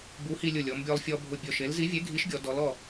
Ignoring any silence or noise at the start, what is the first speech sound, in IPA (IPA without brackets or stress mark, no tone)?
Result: b